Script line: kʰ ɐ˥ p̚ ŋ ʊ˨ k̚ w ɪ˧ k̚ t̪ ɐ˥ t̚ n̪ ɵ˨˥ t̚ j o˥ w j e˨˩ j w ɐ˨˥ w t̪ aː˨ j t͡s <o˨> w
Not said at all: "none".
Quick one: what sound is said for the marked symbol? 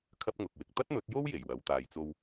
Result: o˧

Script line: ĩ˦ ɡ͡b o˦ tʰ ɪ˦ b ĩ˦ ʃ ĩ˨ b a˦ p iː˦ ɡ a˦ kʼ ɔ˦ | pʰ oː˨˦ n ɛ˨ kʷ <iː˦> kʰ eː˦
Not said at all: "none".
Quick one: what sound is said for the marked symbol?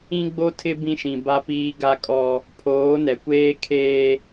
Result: eː˦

